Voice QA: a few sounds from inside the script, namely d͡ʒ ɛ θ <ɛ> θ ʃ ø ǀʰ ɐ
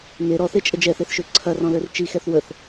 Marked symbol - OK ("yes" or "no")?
no